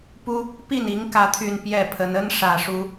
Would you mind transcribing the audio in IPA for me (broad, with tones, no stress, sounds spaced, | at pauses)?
p u˦ | p i˥˨ n i˨˦ ŋ k ä˨˦ t̪ʰ y˨˩ n p j ɛ˥˨ pʰ ə˨˦ n ə˦ n ʂ ä˨˩ ʂ u˨˦